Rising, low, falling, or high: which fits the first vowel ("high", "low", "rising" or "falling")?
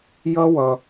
high